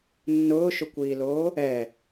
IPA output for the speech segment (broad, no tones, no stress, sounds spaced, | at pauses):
nː ʊː ʃ ʊ kʷ iː l oː | ɛ